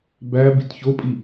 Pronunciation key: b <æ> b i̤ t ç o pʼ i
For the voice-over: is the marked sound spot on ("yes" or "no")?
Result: yes